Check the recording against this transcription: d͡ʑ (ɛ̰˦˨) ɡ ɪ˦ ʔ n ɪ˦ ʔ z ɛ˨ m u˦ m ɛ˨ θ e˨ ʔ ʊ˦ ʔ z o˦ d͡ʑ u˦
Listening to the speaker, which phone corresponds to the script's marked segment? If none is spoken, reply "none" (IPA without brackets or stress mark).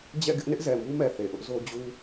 ɛ̰˦˨